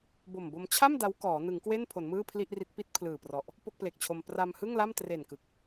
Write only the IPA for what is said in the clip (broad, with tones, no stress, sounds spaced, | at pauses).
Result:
b o˨˩ m b o˧ m t͡ɕʰ a˥˩ m d a˦˥ w k ɔː˩˦ n ɯ˩˦ ŋ k w e˥˩ n pʰ o˩˦ n m ɯː˥˩ pʰ l i˥˩ ʔ r i˦˥ t̚ p i˥˩ t̚ pʰ l ɯː˨˩ p r ɔ˨˩ ʔ | p o˥˩ k̚ p l e˨˩ k̚ t͡ɕʰ o˧ m p r a˧ m h ɯ˥˩ ŋ l a˥˩ m t r e˨˩ n k ɯ˨˩ k̚